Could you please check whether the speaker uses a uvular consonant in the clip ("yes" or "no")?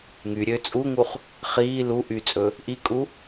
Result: yes